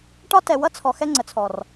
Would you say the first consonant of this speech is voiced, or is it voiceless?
voiceless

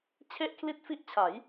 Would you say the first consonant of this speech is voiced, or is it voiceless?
voiceless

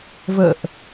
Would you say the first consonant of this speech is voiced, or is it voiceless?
voiced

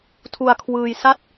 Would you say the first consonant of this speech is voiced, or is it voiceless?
voiceless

